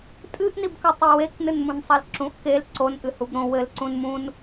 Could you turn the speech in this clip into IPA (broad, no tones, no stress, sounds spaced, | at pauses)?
tʼ ɨ ʔ n i b k ɐ tˤ e w e k n ɨ n m ũ n sˤ ɐ l ǁ ũ ʔ k e l ǀ o n ʔ ɨ h u b ɾ õ w ɘ l ǀ ũ n m ũ n